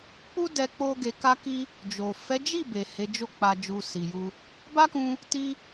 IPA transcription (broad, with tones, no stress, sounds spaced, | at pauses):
k͡p u˦ d ɛ˧ k͡p o˧ ɡ e˨ k a˧ k i˧ | d͡ʒ o˨ f ɛ˨˦ d͡ʒ i˦˨ b e˨ h e˨˦ d͡ʒ o˦˨ k͡p a˧ d͡ʒ u˧ s i˨ j u˧ | b a˦ k ũ˧ | t i˧